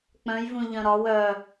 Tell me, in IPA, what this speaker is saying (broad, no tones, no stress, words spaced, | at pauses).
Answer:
k͡pœ̃j vũʎœ̃ɾɒ wœ